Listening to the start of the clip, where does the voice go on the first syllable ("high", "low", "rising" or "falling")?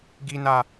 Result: low